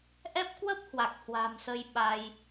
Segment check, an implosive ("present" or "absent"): present